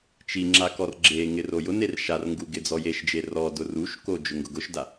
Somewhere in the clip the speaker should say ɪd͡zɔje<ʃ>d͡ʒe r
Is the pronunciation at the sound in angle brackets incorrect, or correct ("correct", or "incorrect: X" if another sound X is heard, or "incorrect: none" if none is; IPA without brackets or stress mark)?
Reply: correct